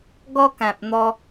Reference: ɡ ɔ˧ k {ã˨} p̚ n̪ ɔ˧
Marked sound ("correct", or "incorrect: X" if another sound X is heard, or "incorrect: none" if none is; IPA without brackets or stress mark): correct